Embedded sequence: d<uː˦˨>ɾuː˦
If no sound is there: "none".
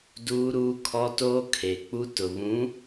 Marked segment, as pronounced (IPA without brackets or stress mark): uː˦